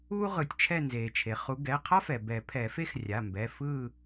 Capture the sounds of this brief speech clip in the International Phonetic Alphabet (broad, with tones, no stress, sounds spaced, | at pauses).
uː˥ ʁ ɯ˨˩˦ tʲ t͡ʃʰ ɛ˦˨ n z eː˩ t͡ʃʰ e˩ χ u˨˦ ɡ ɛ˩˧˩ qʰ a˥ f ɛ˩ b ɛ˨˩˦ pʰ ɛ˨˩˦ f e˥ x rʲ a˩˧˩ m b ɛ˩˧˩ f ɯ˦˨